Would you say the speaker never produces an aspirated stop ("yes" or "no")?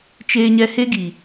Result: yes